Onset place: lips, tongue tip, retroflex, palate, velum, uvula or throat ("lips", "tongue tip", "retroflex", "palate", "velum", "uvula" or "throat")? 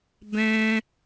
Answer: lips